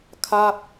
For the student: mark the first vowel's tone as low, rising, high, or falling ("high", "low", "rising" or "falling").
falling